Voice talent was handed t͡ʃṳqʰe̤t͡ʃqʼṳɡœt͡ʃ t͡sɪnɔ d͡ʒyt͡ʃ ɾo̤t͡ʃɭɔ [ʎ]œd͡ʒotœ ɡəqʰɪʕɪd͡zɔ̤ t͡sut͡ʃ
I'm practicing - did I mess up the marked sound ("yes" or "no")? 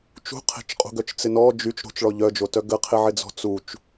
no